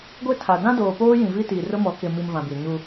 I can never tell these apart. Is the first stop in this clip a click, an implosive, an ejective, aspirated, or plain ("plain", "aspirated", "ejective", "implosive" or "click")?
plain